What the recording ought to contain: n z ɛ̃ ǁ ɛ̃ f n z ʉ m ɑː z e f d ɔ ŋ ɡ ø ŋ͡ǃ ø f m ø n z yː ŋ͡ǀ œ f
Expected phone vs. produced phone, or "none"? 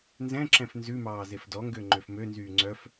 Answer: none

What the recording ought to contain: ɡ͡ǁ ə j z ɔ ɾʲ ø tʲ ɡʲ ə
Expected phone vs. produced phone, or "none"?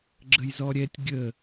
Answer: ø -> ɛ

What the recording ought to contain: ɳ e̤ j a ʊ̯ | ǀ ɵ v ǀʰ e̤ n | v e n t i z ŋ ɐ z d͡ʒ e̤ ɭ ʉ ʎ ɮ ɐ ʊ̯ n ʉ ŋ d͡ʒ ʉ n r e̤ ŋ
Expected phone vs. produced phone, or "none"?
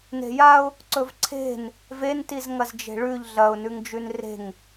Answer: ɳ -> n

